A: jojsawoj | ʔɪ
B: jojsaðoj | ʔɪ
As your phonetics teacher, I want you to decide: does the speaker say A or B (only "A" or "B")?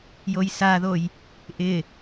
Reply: B